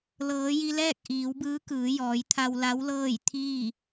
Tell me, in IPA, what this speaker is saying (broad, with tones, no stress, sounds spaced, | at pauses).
l ɤː˩˧ j i˧ l ɛː˥˨ k̚ ʔ iː˩˧ w b ɯː˧˥ k ɯː˩˧ j ɔː˩˧ j t̪ʰ a˧ w l a˧˥ w l ɤː˥˨ j t̪ʰ iː˥˨